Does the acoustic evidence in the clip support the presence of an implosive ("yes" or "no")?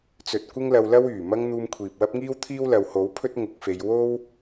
no